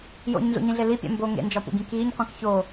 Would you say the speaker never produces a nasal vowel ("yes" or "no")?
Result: no